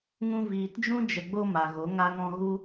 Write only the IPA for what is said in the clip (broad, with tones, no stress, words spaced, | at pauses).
ŋũ˧viː˨td͡ʒũ˦ d͡ʒə˨ɡ͡bo˧ ma˨ɣo˨˦ ŋa˧ŋɔ̃˧ɣu˦